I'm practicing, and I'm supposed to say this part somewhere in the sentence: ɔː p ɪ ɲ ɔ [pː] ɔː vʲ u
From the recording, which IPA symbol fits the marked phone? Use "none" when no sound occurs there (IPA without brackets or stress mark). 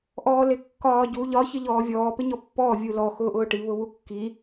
pː